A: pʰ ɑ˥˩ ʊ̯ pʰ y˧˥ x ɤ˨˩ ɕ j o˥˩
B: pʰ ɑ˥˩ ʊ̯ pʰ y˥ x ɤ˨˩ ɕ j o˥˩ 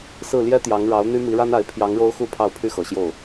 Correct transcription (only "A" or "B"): B